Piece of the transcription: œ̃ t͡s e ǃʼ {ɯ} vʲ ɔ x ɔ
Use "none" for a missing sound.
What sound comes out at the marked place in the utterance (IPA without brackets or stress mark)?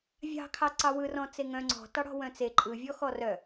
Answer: ɯ